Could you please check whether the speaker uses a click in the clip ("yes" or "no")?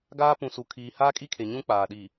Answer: no